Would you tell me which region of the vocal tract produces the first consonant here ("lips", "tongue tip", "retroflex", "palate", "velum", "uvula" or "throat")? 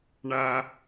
retroflex